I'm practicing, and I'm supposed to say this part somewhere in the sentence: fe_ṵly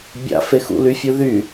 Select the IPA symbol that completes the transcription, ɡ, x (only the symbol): x